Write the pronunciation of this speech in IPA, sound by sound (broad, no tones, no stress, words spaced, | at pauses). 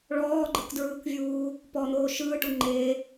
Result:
ɭɔːɡ͡ǃɯkdɹɯːkvʲuː | pɔn̪oː ʃɯːʈu ŋ͡ǃeː